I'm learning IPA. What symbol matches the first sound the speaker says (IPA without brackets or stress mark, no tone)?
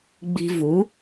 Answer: ɡ͡b